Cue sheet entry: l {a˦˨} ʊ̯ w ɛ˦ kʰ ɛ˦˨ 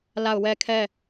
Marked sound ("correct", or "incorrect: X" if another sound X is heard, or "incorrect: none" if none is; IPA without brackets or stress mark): correct